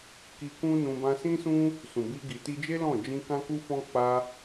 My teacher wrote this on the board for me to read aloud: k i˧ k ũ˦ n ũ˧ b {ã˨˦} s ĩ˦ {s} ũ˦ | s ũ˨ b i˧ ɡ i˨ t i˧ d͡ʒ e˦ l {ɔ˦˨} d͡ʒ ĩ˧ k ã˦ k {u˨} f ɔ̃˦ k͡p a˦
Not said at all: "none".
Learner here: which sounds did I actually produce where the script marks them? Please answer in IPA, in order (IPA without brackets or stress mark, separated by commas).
ã˧, s, ɔ̃˦˨, u˦